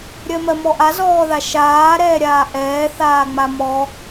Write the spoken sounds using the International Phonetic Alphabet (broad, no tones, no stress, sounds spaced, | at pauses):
ɾʲ ɜ m ɜ m ɔ ʔ a z ɔː ð a ʃ aː ɾ ɛː ɾʲ aː ʔ ɛː θ aː ŋ͡m a m ɔ